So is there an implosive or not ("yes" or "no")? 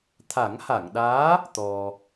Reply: yes